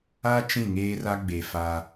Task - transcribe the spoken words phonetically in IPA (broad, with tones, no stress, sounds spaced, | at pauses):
a˦ t͡ʃ ĩ˦˨ ŋ eː˦ r a˦ ɡ͡b e˨ f a˦